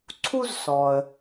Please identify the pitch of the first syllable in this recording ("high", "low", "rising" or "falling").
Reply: high